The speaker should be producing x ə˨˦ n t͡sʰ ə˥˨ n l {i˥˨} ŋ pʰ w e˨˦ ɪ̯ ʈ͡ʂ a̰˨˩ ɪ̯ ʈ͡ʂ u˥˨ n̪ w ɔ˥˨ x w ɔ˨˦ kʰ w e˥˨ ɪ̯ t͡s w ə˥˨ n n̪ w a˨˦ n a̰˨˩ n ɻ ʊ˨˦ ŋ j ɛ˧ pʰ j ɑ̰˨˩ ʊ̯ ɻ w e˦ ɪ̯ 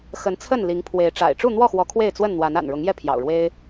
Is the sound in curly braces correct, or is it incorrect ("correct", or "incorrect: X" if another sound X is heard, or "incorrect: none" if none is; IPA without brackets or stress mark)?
incorrect: i˨˦